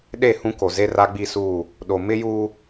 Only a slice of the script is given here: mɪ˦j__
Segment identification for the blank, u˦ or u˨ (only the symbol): u˦